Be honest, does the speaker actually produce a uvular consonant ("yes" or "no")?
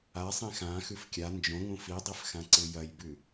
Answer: no